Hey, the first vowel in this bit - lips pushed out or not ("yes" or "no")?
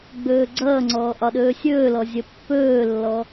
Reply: yes